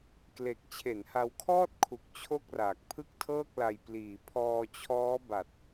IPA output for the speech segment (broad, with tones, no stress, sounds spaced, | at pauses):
k l e˨˩ k̚ t͡ɕʰ e˩˦ n h a˧ w kʰ ɔː˥˩ t̚ kʰ u˨˩ k̚ t͡ɕʰ o˥˩ k̚ r aː˨˩ k̚ pʰ ɯ˥˩ k̚ tʰ ɤː˥˩ k̚ l a˧ j p l iː˨˩ pʰ ɔː˧ t͡ɕʰ ɔː˦˥ b a˨˩ t̚